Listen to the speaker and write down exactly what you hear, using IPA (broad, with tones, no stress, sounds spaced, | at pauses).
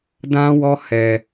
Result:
d ã˦ w ɔ˦ h ɛ˧